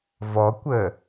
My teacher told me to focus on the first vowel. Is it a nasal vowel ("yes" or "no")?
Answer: no